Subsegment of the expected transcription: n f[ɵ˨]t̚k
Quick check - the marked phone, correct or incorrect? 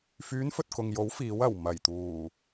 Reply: correct